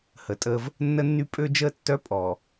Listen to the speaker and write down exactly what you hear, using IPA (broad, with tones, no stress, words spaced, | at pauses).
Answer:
hə˨tʼəː˦v | nːə˦nːy˦ pʼø˦d͡ʒəː˦ tːœ˦pʼɔː˨